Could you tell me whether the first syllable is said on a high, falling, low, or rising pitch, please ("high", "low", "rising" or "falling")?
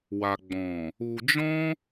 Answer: low